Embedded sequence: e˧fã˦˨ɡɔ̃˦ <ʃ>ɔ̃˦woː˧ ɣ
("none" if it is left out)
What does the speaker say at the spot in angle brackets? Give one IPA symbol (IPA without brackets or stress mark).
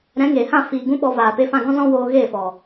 z